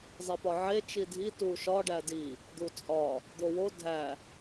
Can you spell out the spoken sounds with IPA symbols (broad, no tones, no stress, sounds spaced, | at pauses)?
zˤ e p ɒ ʕ e t͡ʃ i dʱ i t u ʃ ɒ ɖ æ d i | d̪ u t͡sʼ ɒ | d̪ o w o dʱ æ